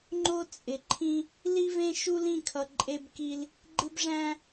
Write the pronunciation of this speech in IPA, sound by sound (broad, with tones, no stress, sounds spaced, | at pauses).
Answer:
ŋ͡ǃ o˦ t͡sʼ ɪ˨ ǃʰ ĩ˦ | l i˦ v ẽ˦ ʃ u˦ l ĩ˦˨ kʰ ʌ˨ ǃʼ e˦ b k i˦ l | ɡ͡ǃ ɪ˦ b ʐ æ̃˦